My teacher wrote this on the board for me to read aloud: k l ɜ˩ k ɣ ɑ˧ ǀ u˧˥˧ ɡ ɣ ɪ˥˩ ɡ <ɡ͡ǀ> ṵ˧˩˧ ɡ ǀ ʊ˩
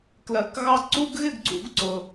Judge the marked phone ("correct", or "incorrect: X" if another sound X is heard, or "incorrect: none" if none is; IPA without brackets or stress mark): correct